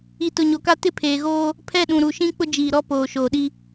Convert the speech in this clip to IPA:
i˨ t ʊ˨ ɲ o˨ k a˦ t ɪ˦ pʰ eː˨ ɣ oː˦ | pʰ ɛ˦˨ ɗ ũ˨ ɾ u˨ ʃ ĩ˦ k͡p ʊ˦ d͡ʒ iː˨ ɾ ɔ˦ p oː˨ ʃ oː˨ ɗ i˦

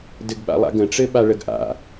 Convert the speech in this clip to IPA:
d ɘ ɡ ɓ a̰ lˠ a̰ ɡ ə̃ ʈ͡ʂ ɘ ɓ a ɭ ə ɡ ʔ a̰

